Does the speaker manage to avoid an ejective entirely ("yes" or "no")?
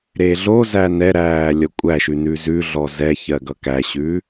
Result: no